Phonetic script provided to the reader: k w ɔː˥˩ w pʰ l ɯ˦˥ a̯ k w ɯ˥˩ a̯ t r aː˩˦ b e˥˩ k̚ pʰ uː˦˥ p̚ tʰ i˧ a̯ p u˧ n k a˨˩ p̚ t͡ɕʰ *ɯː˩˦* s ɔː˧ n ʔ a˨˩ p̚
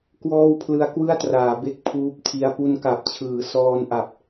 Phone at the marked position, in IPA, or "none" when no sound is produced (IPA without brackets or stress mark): ɯː˩˦